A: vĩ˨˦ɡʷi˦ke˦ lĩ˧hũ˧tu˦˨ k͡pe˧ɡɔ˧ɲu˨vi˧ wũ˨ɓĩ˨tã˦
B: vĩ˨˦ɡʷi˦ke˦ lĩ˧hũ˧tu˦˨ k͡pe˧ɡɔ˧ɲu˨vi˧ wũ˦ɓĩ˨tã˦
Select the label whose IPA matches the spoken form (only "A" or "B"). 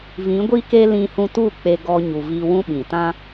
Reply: B